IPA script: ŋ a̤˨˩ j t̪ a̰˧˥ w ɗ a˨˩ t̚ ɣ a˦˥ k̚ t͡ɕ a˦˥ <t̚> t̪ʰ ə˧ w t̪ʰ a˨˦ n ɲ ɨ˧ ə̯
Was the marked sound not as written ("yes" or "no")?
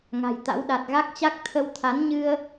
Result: yes